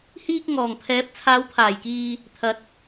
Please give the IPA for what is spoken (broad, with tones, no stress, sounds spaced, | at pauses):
h iː˧ k̚ ŋ ɔː˨˩ ŋ pʰ ɛː˨˥ p̚ t͡sʰ aː˨˥ w t̪ʰ aː˨˩ j k iː˧ | t̪ʰ ɐ˨ t̚